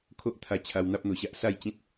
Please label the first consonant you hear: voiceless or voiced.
voiceless